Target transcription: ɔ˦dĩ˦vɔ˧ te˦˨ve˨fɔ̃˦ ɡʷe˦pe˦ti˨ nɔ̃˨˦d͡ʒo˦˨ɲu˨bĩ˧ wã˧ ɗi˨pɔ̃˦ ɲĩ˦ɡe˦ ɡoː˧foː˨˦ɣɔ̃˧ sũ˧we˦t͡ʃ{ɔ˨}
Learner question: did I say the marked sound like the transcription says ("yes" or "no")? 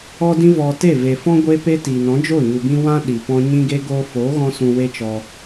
no